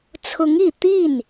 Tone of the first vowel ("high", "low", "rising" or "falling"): rising